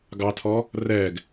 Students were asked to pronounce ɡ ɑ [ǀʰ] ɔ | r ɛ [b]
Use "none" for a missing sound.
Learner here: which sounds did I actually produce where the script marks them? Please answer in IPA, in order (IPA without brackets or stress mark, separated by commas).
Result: tʰ, ɡ